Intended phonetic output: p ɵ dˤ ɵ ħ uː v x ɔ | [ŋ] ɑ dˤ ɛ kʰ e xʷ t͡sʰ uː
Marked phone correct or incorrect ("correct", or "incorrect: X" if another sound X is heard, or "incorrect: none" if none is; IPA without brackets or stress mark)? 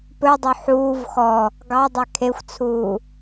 incorrect: ɡ